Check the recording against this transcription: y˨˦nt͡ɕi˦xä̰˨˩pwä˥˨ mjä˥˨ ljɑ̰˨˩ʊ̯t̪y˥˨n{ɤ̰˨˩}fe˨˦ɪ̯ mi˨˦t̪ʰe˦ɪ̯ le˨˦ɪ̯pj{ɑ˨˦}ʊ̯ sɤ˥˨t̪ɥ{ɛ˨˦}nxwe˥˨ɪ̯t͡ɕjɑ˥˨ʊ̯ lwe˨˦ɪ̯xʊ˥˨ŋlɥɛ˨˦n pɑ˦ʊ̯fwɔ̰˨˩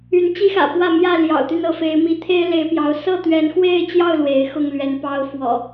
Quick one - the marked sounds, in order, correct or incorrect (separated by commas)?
incorrect, correct, correct